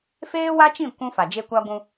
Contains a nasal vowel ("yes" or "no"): yes